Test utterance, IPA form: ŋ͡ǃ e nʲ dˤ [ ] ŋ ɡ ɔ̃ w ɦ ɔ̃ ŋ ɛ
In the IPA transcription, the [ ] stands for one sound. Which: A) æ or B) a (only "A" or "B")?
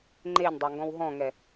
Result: B